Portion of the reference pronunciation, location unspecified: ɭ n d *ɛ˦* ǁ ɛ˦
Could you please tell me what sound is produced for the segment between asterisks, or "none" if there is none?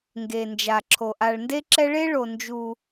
e˦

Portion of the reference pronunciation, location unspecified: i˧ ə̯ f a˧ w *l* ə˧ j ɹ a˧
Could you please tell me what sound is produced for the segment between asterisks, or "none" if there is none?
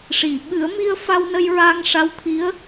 n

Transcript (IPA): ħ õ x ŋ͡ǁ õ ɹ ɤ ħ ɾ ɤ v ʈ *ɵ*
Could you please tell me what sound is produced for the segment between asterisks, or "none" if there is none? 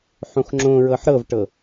ɤ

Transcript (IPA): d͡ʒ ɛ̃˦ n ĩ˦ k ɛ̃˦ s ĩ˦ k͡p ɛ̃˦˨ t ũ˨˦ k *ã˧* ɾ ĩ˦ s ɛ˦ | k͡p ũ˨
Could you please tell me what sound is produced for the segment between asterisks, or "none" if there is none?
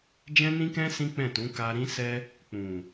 a˧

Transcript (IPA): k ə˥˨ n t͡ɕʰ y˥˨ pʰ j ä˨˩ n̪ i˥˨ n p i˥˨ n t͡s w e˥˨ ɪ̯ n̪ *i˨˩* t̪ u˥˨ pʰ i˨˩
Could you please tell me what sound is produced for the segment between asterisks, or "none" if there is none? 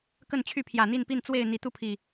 i˨˩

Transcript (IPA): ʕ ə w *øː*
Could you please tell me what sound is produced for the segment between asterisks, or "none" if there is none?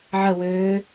øː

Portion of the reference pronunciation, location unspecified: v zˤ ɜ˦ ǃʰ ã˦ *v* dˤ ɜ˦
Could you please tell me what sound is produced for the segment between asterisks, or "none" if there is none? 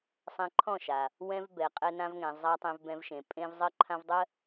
v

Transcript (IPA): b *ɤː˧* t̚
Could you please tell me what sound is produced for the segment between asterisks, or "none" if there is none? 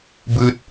ɯː˧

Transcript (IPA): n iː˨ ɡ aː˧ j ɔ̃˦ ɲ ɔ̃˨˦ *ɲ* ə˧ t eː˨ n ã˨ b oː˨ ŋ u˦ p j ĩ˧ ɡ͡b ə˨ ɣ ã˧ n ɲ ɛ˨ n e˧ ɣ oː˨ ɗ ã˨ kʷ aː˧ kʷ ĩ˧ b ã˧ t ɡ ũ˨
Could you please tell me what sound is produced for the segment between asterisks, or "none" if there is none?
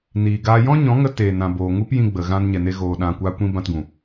ŋ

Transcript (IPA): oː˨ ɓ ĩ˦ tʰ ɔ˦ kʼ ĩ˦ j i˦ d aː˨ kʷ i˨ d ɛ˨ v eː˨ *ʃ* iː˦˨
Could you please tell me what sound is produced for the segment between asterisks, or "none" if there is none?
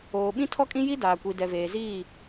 z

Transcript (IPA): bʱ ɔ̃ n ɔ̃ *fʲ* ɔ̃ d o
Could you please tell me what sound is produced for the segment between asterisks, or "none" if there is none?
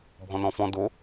f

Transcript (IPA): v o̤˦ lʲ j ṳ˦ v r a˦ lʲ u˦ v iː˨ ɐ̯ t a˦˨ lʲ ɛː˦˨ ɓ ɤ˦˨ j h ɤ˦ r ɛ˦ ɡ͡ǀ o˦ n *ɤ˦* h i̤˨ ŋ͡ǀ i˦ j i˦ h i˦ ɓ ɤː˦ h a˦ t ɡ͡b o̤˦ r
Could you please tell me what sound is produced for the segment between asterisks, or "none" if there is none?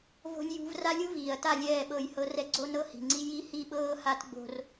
ɤ˦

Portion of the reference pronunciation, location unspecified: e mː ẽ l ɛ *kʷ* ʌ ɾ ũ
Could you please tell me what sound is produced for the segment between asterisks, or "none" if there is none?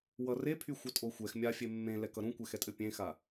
k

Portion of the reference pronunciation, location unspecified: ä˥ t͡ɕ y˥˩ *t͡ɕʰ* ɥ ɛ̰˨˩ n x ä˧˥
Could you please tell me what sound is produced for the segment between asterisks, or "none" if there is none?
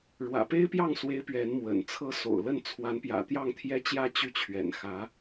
t͡ɕʰ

